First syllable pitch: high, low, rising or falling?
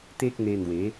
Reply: high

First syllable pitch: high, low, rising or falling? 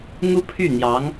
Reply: high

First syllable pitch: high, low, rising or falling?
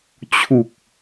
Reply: low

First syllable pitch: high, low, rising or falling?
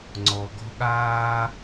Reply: low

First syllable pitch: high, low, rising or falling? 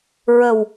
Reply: low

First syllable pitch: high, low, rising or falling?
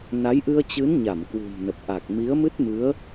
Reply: rising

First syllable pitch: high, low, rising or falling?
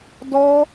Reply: high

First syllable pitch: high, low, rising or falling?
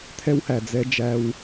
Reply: high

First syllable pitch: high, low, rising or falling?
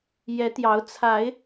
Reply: rising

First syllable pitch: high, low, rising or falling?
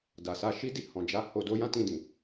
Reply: low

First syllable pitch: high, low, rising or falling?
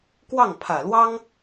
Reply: falling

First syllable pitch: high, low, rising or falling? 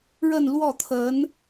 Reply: falling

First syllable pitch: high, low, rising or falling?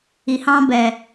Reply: low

